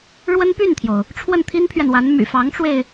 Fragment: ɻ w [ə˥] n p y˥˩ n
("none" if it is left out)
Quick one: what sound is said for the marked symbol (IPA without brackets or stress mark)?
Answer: ə˥